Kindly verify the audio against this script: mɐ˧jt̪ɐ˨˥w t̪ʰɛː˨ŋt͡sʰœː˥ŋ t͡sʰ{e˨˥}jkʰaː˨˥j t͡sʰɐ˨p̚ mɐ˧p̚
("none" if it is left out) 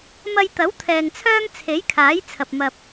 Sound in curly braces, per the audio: e˨˥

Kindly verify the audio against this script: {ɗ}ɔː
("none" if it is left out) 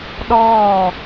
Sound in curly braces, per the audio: ɗ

